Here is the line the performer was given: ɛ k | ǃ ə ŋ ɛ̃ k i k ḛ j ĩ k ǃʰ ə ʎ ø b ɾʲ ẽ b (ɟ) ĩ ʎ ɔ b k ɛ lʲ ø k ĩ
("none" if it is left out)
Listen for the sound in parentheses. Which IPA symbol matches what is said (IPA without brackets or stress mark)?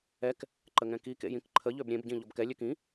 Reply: ɟ